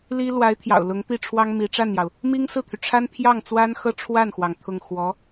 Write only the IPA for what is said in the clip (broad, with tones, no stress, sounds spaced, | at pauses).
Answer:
l i˥ l w a˧˥ ɪ̯ t̪ʰ j ɑ̰˨˩ ʊ̯ l ʊ˧˥ ŋ t̪ i˥˩ ʈ͡ʂʰ w ɑ˥ ŋ m i˧˥ ʈ͡ʂ a˥˩ n j ɑ˩ ʊ̯ | m i˥ ŋ s ɹ̩˥˩ t̪ʰ y˩ ʈ͡ʂʰ a˥ n pʰ j ɑ˥˩ ŋ t͡s w a˥ n x ɤ˥ ʈ͡ʂʰ w a˥˩ n x w ɑ˩ ŋ t̪ʰ ʊ˥˩ ŋ x w ɔ˧˥